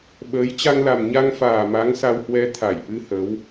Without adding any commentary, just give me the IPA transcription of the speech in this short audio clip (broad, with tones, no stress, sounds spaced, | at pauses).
ɓ əː˨˦ j t͡ɕ a˧ ŋ l a˨˩ m ɲ a˧ ŋ f aː˨˩ m a˨˦ ŋ s a˧ w h w ɛ˧ t̪ʰ a˧˩ j ʔ ɨ˧ h ə˨˦ w